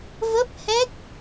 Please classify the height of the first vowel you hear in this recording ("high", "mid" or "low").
mid